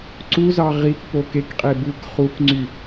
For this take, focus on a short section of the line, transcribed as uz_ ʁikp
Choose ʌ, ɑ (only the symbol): ɑ